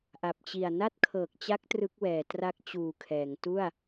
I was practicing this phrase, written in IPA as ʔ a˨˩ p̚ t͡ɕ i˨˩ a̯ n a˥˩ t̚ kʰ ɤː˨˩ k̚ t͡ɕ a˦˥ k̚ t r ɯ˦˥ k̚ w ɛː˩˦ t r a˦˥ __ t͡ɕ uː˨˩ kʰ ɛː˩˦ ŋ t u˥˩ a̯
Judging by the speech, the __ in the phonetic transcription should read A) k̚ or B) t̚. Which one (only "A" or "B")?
A